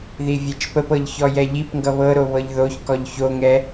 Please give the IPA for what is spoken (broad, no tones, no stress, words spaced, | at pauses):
ðivʲɛt͡ʃpəpɤʎ çɔjɛʎipŋɡʌ βɤɾo βɤʎðoçkɔʎ çoŋɛ